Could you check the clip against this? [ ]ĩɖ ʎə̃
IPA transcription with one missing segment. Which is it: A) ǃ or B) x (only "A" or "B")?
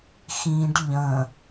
B